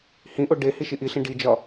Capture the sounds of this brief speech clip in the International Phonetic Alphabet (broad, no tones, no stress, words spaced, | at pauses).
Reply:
hĩʔo ɖe hiʃiʔiɬĩ ɖid͡ʒɒ